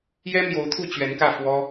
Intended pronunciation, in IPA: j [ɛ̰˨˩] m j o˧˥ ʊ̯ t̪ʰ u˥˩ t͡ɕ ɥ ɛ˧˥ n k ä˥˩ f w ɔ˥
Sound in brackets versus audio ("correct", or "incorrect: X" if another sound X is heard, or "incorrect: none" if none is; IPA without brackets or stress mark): incorrect: ɛ˥